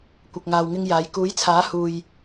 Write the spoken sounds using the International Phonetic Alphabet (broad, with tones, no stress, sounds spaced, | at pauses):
kʷ ɐ˨ k̚ ŋ aː˨ w ŋ ɪ˧ ŋ j aː˨˧ j k uː˨˥ j t͡sʰ aː˨˥ h uː˨ j